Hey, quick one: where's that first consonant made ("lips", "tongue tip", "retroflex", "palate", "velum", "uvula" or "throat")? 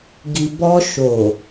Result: velum